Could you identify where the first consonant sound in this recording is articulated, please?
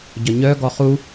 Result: palatal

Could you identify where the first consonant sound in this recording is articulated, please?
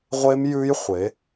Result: uvular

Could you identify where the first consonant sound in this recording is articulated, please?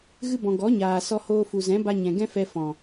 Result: velar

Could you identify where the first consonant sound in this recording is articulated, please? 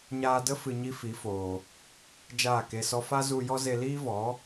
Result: palatal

